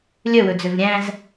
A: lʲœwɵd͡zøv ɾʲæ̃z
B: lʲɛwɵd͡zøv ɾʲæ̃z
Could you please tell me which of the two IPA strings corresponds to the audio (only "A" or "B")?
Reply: A